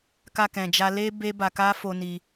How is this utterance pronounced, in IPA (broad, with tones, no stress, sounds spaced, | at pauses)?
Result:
k a˧ k ɛ̃˨ d͡ʒ a˧ l e˦ b e˦ b a˧ k a˦ f o˧ n i˧